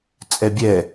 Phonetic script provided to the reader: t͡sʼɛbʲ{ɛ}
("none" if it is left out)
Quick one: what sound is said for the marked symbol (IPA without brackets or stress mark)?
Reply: ɛ